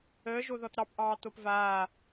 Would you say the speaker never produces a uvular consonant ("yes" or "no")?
yes